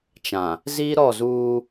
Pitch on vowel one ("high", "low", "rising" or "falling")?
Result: low